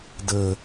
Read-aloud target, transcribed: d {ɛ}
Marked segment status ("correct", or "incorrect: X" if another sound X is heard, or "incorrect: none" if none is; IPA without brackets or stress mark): incorrect: ə